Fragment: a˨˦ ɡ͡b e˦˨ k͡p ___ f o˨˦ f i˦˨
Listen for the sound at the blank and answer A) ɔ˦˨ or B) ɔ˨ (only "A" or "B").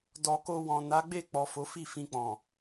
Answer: B